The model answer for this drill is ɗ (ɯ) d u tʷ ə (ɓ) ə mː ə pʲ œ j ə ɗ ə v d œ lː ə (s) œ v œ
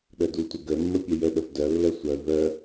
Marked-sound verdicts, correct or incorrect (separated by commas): incorrect, incorrect, incorrect